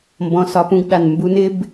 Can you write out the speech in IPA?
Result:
m b ɔ̃˧ s ɒ˧ p ũ˦ ɡ ɗ a˨ n m b u˧ n ɪ˦ b

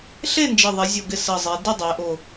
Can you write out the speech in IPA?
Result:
ɬ e˥˨ n d͡ʒ ɪ˨˩ ðˤ ɪ˩˧ zʲ o˨˩ ɡ ɪ˨˩ s ə˨˩ zˤ e˩˧ d ɪ˥˨ dˤ e˩˧ ʔ o˨˩

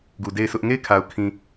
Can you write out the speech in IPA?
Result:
ɡ u˨ d e˦˨ ɪ̯ s ʊ˦ ʔ ŋ e˦˨ ɪ̯ kʰ a˨ ʊ̯ kʰ ĩ˨

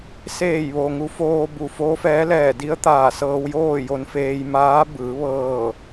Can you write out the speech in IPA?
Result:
s eː˧˩ j ʋ o˩ ŋ u˩˧ f oː˧ b u˩ f o˧˥ f ɛː˧˥ l ɛː˧˩ d i˧˥ ə̯ t̪ aː˧˩ s ɤː˧ w j oː˥˨ j o˧ n f eː˧ j m aː˧˥ b ɯː˩˧ ʋ ɤː˧˩

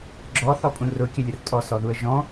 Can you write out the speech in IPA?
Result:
ɡ͡ǁ ɔ θ ɔ pʼ ũ r ʊ kʲ ə lʲ ə r tʼ ɔ s ɔ ð u ə̯ ʒ ɔ̃

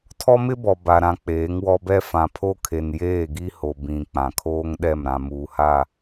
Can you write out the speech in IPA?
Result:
tʰ ɔ˦ m ɪ˦ b ɔ˨ b a˨ ɾ ã˨ k͡p eː˨˦ ŋ w ɔ˦ b ɛ˦ f ã˨ pʰ o˦ kʰ e˨ n j eː˦˨ ɡ i˦ h o˨ b ĩ˨ k͡p ã˨ kʰ oː˦ ŋ ɗ ɛ˦˨ m ɾ ã˨ m uː˨ h a˦˨

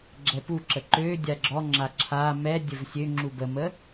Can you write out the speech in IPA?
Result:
ɡ͡ǁ ɛ p u ǁ ə ǃ ø dʲ a ɡ͡ǁ ɔ ŋ͡ǁ a ǁʰ a m ɛ dʲ ə v sʲ ø ŋ͡ǁ u b ə m ə

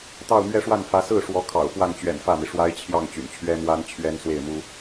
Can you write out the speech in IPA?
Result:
t̪ ɑ˥˧ ʊ̯ m ɥ ɛ˥˧ ʂ w a˥˩ n f ä˧˥ s ɹ̩˥˩ ʂ w ɔ˧˥ kʰ ɑ̰˨˩ ʊ̯ f w a˥˩ n t͡ɕ ɥ ɛ̰˨˩ n f ä˥˩ m i˩ ʂ w a˥ ɪ̯ t͡ɕʰ j ɑ˥˩ ŋ t͡ɕ y̰˨˩ n t͡ɕʰ ɥ ɛ˥ m w a˥ n t͡ɕʰ ɥ ɛ˥ n s w e˥˩ ɪ̯ m u˥

